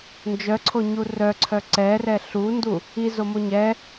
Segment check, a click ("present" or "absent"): present